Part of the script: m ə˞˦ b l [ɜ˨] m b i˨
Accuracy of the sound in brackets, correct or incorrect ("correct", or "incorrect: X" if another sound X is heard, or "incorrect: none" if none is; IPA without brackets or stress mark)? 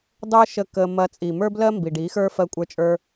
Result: incorrect: ɜ˦